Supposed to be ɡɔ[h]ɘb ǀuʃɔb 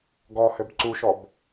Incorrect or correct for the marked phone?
correct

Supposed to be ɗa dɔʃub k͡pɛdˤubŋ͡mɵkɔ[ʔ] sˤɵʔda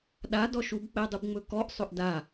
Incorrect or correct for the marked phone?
correct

